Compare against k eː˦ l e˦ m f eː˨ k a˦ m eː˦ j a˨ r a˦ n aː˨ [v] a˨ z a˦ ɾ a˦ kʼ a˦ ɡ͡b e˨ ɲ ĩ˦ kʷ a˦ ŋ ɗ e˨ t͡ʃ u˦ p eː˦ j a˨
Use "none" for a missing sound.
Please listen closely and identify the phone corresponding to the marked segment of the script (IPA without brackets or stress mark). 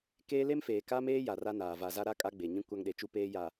v